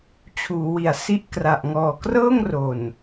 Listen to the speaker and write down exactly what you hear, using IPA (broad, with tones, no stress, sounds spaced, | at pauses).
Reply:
t͡ɕʰ uː˩˦ w i˩˦ a̯ s i˦˥ ʔ k r a˨˩ ʔ ŋ ɔː˨˩ k r ɤː˥˩ ŋ r o˨˩ n